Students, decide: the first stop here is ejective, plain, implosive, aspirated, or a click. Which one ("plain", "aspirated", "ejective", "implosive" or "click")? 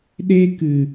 implosive